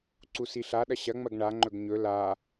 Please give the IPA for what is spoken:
ǀ u s i ɬ a ɗ ɐ ɕ ɐ ŋ͡m ɐ ɡ ɳ a ŋ͡ǃ ɵ ɡ ɲ ɵ l a

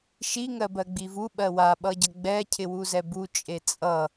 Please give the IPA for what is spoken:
ʃ i ŋ ɜ b ɜ ɡ͡b i v u ɓ ɜ w a ɓ ʌ ɟ ʌ ɡ͡b ɛ cʰ ɪ w u z ɛ b u t͡ʃʼ e t͡sʼ ʌ

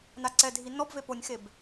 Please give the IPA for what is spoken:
n a ǀ ɛ dʱ i n ɔ b v e p o nʲ x e b

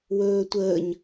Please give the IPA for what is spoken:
w ɵː tʷ əː ɲ

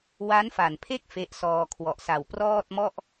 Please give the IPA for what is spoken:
w a˦˥ n f a˨˩ n pʰ e˥˩ k̚ f e˦˥ ʔ s ɔː˧ kʰ w ɔ˨˩ ʔ s a˨˩ w p r ɔː˥˩ t̚ m ɔ˥˩ ʔ

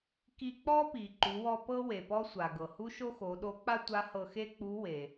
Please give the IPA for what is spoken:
k i˧ k͡p ɔ˥ p i˩ ǃ u˩˧ w ɔ˧ p ɤ˥ w e˩ p ɔ˥ sʷ a˩ ɡ ɤ˩ h u˥ ʃ o˥ x o˩˧ ɗ o˧˥ k͡p a˥ tʷ a˧˥ h ɤ˧ x e˥ k͡p u˧˥ w e˩

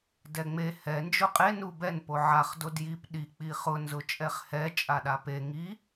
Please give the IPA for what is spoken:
d ɛ ŋ͡m e h ɛ n d͡ʒ ʊ qʼ e n u b ɛ n p o ʕ a χ d o d j i p ɗ i k͡p i χ ʊ n z ʊ t͡ʃʼ ɛ χ h ɛ t͡ʃʼ a ɗ a p e ŋ i

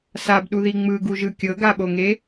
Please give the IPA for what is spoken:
s a b ɗ u ð i ŋ͡m ɯ ɡ u ʒ ɯ kʲ ɤ ɡ a ɓ o ŋ e

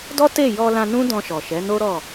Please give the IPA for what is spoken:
d ɔ˦ t e˦˨ j ɔ˧ l ã˧ n ũ˦ d ɔ̃˧ ʃ ɔ˨ ʃ ɛ˨˦ n o˦ ɾ ɔ˦˨

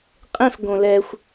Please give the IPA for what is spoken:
qʼ ẽ f ɡ õ l ɛ xʷ

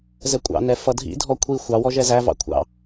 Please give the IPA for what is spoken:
z ɛ kʷʼ ɑ̰ n ɛ f ʌ dʱ ḭ dʱ ɔ kʷʰ i xʷ ɑ w ɔ ʒ ɛ z æ v ɑ̰ kʷʰ ɑ̰

